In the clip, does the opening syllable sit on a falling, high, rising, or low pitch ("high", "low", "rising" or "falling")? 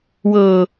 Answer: low